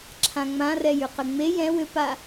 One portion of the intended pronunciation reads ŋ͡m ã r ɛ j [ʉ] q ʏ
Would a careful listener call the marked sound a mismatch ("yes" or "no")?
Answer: no